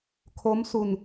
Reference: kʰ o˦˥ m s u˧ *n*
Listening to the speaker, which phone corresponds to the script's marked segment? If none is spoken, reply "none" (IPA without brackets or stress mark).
n